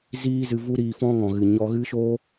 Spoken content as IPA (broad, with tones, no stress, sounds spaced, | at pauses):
z iː˦ z ɨ˧ v u˦ ɾ iː˧ f ɔ̃˦ ŋ ɔ̃˨ ɣ ɨ˨ ɲ ɔ˧ ɣ ɨ˦ ʃ o˦